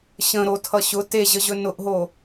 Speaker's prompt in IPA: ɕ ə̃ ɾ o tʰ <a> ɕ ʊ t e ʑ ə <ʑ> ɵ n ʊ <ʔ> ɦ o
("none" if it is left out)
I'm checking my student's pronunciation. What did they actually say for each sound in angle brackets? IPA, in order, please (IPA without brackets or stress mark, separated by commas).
ʌ, ʑ, ʔ